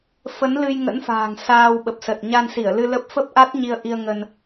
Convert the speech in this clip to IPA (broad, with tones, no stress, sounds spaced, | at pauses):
f ə˨˦ n l ɨ˧ j ŋ ə̰˧˥ n f a̤ː˨˩ ŋ s aː˧ w ɓ ə˨˩ p̚ s ə˨˩ t̚ ɲ a˧ n s i˧˩ ə̯ l ɨ˧ l ə˦˥ p̚ f ə˦˥ p̚ ʔ a˦˥ t̚ ɲ i˧ ə̯ ʔ i˧ ə̯ ŋ ə˧ n